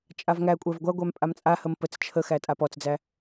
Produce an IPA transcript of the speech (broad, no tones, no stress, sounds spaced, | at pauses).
t͡ʃʼ a v ŋ æ kʷʼ æ v ɡʷ a ɡʷ æ m pʼ a m t͡sʼ a h ə m p ə t͡s t͡ʃʰ ə x æ tʼ a p ɔ t͡s d͡z æ